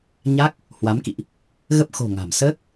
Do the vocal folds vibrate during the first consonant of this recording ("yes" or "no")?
yes